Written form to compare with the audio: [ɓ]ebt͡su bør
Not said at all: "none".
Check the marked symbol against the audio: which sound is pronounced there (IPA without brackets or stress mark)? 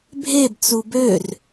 bʱ